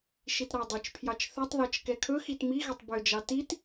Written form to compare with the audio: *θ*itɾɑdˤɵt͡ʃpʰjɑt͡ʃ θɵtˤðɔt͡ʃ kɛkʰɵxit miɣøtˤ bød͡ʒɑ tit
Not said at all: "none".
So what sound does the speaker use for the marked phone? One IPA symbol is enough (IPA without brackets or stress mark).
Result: ʃ